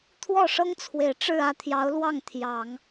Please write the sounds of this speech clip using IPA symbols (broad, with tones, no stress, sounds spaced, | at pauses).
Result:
t̪ʰ w ɔ˥˩ ʂ ɤ˥ ŋ t͡sʰ w e˨˩ ɪ̯ ʈ͡ʂ ɻ̩˥˧ ä˥˩ t̪ʰ j ɑ˧˥ ʊ̯ l w ɑ˥˩ ŋ t̪ʰ j ɑ˨˩˦ ŋ